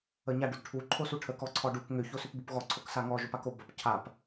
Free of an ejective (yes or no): yes